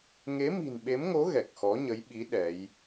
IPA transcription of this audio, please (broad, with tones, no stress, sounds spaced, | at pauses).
ŋ e˨˦ m i̤˨˩ n ɓ e˨˦ m ŋ o˨˦ ɣ ɛ˨˩ k̚ x ɔ˨˦ ɲ ə˨˦ j ɓ i˨˦ ɗ ɛ˨˦ j